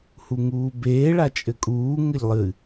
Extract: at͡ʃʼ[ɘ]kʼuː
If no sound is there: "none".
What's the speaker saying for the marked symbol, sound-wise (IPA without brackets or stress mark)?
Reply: ɘ